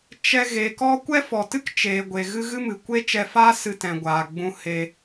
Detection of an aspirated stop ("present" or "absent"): absent